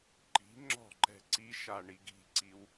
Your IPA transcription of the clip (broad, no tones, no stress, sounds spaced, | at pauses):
ǃ i̤ ŋ͡ǁ ɔ̤ ǃ ɛ̤ ǀ i ʃ a ɳ i ɡ i̤ ǀ i w